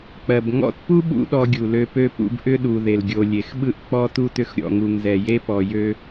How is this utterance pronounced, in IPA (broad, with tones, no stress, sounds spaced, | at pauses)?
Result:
k͡p ɜ˨ b ŋ ɔ̰˦ t p u˥ ɓ ṵ˦ ɗ ɔ˦ ɡʲ u˩ l ø˦ p ø˥ p ṵ˦ b ʔ ʏ˥ ɗ u˨ ð e˩ l ɡʲ o˨ lʲ e˨ x ɓ ɯ˥ ʔ k͡p ɔ˥ t u˥ t ʏ˦ x ɾʲ ɔ̰˨ ŋ u˨ ŋ z ɛ˨ j e˥ p ɔ˨ j ø˥